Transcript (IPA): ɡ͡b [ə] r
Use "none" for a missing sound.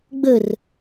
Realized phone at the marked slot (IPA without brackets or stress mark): ə